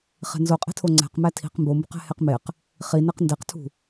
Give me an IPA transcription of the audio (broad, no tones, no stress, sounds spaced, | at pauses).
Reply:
χ e̤ n z o qʼ e̤ tʰ o ŋ͡ǀ æ̤ q m æ tʰ i̤ q m b o m b ṳ q æ̤ h e q m e q | χ i n e q n d e q tʰ ṳ